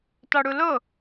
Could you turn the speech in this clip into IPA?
t ɒ ɽ u l o

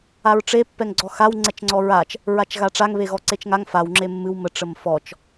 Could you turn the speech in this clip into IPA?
a ɹ ʈ͡ʂ e pː ɛ ŋ ɡ͡ǀ ɔ x a w ŋ͡ǀ ɛ t͡ʃ ŋ͡ǀ ɔ ɹ a t͡ʃ | ɹ a t͡ʃ ɣ a ʈ͡ʂ a ŋ β e ɣ ɔ ǀ e t͡ʃ ŋ a ŋ f a w ŋ͡ǁ e mː ɨ w m ə ʈ͡ʂ ə m f ɔ t͡ʃ

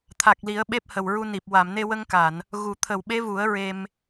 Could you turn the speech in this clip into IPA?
t̪ʰ a˨˩ k̚ l i˨˩˦ ə̯ ɓ e˦˥ p̚ h ə˨˩ w ɹ u˧ n i˨˩ p̚ w a˨˩˨ m n e˧ w ə˧ ŋ k a˨˩˨ n | ɣ u˨˩˨ t̪ʰ ə˨˩˨ w ɓ e˧˥ v u˨˩˦ ə̯ ɹ e˧ m

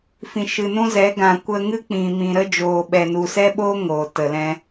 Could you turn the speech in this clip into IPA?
f ĩ˨ ʃ ɨ˨ n ũ˦ z ɛ˨˦ ɡ ã˨ kʷ ə˧ ŋ ɨ˦ k͡p ĩ˨ m ĩ˨ ɾ ə˦ d͡ʒ oː˨ ɓ ɛ˨ n u˨ s ɛ˦ ɓ o˦ ŋ oː˨ t ə˨ l ɛ̃˧

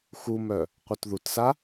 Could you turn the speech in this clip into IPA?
x u m œ | qʷ œ t ð u t s a

